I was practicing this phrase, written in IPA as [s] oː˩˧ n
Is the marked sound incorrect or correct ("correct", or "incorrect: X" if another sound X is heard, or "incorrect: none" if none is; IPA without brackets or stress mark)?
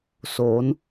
correct